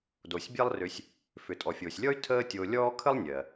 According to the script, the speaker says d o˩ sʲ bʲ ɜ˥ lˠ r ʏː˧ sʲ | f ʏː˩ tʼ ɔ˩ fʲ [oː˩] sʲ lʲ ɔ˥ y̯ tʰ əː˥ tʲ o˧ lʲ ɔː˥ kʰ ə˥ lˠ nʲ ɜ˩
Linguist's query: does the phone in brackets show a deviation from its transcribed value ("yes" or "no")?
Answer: no